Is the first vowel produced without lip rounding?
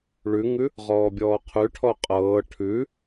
no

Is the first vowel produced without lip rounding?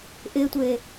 yes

